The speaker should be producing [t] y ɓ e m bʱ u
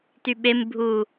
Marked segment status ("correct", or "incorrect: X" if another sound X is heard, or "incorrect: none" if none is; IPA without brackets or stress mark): correct